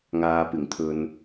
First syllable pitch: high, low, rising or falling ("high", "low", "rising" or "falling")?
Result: low